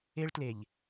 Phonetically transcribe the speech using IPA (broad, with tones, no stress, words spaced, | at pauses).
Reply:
e˦ɭtle˨ʎ